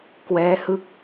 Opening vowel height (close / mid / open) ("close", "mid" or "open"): mid